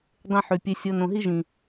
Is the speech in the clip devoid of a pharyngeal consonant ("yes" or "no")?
no